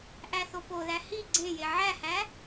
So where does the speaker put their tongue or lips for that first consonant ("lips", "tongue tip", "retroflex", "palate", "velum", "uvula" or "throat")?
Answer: throat